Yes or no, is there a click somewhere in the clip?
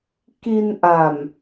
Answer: no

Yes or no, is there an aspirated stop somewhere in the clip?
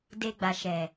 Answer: no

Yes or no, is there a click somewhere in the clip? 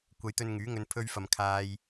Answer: no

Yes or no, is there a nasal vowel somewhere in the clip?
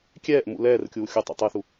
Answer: no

